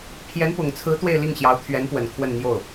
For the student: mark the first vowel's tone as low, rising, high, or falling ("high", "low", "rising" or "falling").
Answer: rising